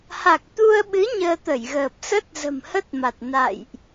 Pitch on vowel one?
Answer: low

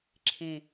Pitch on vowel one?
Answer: low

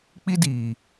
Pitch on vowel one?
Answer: high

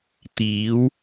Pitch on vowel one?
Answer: rising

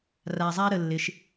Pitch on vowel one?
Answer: low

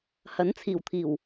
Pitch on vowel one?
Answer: rising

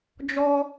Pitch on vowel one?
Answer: high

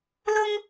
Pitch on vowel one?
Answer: high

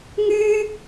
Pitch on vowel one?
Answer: high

